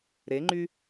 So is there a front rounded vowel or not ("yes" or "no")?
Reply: yes